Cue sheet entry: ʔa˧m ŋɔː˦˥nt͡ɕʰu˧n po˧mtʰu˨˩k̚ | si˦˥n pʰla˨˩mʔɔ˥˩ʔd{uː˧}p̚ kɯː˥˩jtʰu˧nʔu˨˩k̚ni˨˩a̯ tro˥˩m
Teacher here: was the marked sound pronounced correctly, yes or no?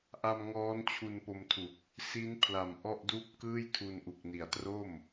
no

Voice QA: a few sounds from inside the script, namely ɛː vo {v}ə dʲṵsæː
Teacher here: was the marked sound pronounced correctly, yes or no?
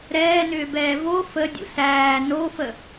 no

